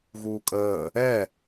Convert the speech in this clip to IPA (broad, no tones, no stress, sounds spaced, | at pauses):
ɣ uː kʼ əː | ɛ